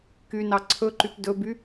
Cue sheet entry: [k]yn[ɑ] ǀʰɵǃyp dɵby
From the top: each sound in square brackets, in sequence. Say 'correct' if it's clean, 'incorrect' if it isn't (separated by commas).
correct, correct